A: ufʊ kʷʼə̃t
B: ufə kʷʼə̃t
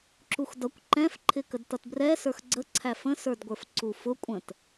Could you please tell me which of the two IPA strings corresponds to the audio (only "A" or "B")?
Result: A